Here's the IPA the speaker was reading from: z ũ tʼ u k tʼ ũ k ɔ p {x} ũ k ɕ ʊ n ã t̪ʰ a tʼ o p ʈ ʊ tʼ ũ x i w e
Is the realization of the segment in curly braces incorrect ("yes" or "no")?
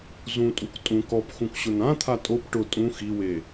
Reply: no